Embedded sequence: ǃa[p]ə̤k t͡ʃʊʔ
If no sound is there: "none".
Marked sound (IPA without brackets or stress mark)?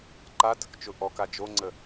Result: t